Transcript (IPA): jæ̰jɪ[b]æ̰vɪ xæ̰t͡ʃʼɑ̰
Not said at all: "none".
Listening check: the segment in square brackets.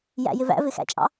v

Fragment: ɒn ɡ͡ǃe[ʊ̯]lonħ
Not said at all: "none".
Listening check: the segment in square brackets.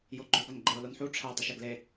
ʊ̯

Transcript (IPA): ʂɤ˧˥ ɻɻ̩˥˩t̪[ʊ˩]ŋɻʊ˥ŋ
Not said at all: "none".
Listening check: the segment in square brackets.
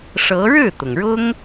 ʊ˩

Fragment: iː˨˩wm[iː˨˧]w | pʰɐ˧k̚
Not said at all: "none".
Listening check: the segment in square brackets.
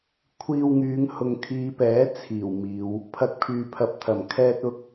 iː˨˧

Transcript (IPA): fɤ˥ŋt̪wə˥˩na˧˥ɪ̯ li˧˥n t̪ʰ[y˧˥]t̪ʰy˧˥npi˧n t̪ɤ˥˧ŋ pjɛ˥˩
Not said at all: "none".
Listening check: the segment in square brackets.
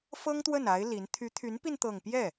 y˧˥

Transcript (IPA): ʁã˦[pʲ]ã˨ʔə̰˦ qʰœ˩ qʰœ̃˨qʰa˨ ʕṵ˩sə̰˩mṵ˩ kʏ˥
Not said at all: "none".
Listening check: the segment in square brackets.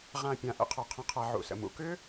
pʲ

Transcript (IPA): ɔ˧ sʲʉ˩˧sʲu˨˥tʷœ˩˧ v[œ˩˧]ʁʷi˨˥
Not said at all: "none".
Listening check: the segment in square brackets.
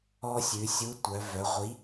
œ˩˧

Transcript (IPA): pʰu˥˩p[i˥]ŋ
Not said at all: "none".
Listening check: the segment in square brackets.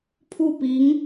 i˧˥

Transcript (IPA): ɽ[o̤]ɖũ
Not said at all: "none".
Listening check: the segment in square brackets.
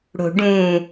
o̤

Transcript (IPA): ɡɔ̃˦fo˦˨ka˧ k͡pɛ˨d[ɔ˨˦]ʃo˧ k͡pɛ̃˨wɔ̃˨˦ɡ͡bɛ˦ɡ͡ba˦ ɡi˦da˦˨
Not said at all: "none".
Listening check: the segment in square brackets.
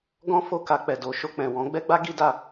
o˨˦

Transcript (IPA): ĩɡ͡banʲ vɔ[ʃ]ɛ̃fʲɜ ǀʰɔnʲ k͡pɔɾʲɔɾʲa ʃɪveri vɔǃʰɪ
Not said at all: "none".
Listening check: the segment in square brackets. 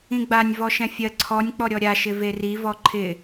ʃ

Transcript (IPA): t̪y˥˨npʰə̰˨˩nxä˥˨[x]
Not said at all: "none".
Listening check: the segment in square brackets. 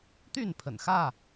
none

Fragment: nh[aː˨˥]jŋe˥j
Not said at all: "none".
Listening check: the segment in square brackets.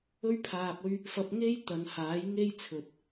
aː˨˥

